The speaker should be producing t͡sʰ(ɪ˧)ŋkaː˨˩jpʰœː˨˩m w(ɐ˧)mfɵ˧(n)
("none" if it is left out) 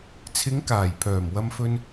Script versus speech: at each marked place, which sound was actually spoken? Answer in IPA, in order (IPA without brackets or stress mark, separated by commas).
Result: ɪ˨˧, ɐ˧, n